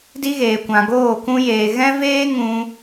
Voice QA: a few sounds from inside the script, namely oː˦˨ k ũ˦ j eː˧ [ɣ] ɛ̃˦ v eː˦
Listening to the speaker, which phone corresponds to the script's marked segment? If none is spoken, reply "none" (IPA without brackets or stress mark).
ɣ